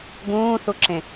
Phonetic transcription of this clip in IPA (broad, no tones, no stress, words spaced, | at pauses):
ɡũːθuǁẽ